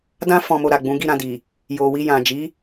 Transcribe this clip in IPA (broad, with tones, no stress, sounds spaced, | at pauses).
d ã˦ f ɔ̃˧ m o˧ ɾ a˨ ɡ͡b ũ˨˦ ɡ i˦˨ ɾ ã˧ d i˨ | j o˨ w i˧ j ã˨ d͡ʒ i˨˦